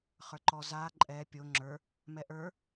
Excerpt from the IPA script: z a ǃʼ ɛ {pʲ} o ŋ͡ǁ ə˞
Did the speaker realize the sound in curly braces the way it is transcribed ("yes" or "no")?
yes